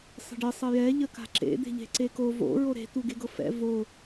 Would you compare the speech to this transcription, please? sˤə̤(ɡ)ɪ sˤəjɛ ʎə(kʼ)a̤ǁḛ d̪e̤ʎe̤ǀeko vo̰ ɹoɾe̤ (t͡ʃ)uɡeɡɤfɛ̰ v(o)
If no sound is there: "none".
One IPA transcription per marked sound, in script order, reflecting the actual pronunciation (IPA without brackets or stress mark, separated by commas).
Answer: ɖ, k, t̪, o